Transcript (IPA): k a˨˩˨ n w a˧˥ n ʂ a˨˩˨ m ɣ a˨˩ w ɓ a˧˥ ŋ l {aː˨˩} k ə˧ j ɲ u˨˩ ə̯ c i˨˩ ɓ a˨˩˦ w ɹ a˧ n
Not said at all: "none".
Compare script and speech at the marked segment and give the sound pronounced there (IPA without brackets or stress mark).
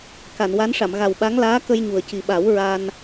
aː˧˥